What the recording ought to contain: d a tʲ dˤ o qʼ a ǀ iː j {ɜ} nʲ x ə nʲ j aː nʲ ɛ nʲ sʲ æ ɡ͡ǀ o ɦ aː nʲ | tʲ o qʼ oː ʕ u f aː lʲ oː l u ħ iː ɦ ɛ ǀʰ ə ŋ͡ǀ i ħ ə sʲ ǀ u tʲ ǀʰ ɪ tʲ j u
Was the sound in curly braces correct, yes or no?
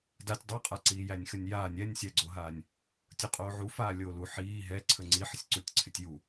no